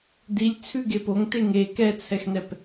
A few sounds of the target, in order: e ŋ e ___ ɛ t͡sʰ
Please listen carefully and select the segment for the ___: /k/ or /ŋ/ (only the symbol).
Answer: k